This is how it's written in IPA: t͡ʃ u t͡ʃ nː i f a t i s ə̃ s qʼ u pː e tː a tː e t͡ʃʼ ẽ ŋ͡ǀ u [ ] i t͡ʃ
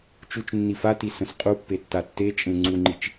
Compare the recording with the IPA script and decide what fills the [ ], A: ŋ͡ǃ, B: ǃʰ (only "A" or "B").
A